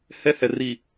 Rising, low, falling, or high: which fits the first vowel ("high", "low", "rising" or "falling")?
high